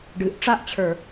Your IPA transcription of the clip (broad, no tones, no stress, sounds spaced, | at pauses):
ɖ ɨ ʔ ʈ͡ʂ a ʔ t͡ɕʰ ə˞